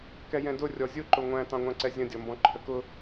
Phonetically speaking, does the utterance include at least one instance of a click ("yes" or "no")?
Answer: yes